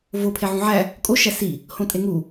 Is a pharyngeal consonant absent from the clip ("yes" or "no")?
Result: no